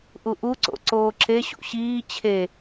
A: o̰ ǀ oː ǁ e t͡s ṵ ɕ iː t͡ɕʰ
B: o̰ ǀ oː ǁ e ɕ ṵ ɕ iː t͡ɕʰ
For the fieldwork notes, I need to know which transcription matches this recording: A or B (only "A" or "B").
B